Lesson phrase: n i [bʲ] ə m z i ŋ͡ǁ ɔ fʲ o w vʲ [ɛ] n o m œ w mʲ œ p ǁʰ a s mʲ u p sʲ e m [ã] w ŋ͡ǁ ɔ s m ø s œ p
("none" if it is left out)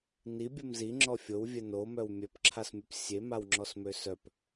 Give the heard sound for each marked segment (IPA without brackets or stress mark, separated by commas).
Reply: bʲ, ɛ, a